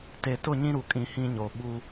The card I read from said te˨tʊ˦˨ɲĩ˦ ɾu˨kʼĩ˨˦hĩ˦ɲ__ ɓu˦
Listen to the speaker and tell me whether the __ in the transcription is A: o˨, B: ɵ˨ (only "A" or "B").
A